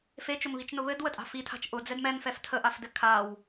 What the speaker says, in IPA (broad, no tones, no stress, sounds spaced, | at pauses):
f e t͡ʃ ʊ m β i t͡ʃ n ʊ β ɘ d w ə tʼ a̤ f i tʰ a̤ t͡ʃ ʔ ʊ d͡z ɛ d m ɛ n f ɛ f tʰ ə ʔ a f d ɘ kʰ a w